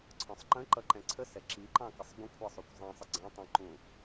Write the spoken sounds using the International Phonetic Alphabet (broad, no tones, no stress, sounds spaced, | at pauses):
ǀʰ ɔ̃ sˤ ǃ ə̃ ǃ ʌ ǃ ɛ̃ ǀʰ ə s ɛ ǁ i ǃ ɑ̃ k ə sˤ ɡʷ ə̃ kʷʰ ɑ sˤ u kʷ zˤ ĩ sˤ ə ɡ͡ǀ ɑ̃ tˤ ə̃ ǃ ũ